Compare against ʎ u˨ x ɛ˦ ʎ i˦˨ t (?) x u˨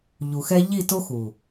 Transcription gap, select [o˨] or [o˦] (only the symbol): o˦